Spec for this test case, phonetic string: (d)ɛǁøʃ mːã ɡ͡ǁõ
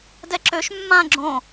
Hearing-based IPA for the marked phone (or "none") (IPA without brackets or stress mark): d